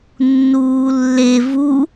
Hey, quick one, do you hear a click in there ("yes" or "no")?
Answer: no